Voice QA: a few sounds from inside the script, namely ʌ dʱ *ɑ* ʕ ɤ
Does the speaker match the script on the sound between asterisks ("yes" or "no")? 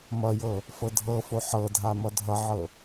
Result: no